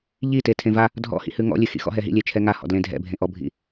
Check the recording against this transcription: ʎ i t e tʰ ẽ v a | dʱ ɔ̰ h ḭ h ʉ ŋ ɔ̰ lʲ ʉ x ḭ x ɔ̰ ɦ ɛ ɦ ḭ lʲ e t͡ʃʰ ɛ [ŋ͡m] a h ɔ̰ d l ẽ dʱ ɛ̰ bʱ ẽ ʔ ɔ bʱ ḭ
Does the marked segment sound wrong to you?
yes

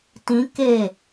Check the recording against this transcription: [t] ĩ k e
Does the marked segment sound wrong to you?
no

